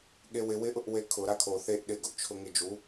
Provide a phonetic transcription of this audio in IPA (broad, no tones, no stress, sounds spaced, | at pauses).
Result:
ɠ e w ɪ w ɪ ʔ ʊ ʔ w e kʰ ʊ ɾ a kʰ o θ e ʔ ɗ ɪ ɡ ʊ ʔ t͡ʃʰ ʊ ŋ ɪ d͡ʒ u